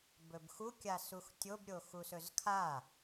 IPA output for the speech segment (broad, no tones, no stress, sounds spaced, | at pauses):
b ɵ b x u kʲ a s u x tʲ o b ɾʲ o x u s ɵ z kʰ a